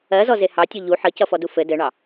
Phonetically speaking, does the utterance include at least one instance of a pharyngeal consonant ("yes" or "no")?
yes